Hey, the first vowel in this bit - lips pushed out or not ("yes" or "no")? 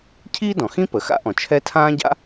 no